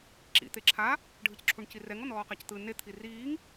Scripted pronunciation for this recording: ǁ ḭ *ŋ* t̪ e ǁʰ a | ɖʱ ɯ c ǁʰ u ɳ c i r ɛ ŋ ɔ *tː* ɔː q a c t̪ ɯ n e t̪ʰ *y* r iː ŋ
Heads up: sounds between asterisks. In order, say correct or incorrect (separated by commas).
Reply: incorrect, incorrect, incorrect